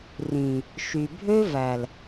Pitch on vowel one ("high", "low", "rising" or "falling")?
low